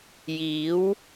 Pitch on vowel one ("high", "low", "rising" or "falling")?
rising